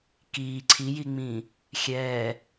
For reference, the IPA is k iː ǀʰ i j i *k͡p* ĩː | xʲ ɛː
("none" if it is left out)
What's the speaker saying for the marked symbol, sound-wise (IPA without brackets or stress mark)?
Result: ŋ͡m